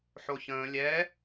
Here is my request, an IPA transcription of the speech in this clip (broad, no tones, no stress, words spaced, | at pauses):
ħoçə̃ː lʲɛ